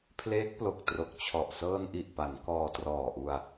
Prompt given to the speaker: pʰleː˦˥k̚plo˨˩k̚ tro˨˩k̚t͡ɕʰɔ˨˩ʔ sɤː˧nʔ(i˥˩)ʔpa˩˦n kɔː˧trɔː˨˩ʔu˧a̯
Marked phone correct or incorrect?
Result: incorrect